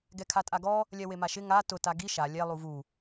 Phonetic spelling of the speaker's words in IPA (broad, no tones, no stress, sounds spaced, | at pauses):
ɡ ɛ kʰ a tʼ a ɡ ɔ | lʲ ɛ w e m a ʃ ɪ ŋ a t ʊ t a ɡ i ʃ a lʲ ɛ lˠ u v u